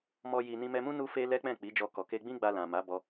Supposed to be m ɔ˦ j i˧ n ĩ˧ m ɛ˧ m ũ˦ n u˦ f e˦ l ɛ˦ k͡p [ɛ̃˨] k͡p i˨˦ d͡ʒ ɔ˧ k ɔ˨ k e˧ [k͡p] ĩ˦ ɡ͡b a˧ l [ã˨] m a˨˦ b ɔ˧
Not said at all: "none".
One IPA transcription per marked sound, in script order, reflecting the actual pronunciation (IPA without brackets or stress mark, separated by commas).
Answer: ɛ̃˦˨, ɡ͡b, ã˨